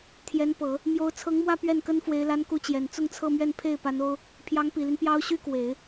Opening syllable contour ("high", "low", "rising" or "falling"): rising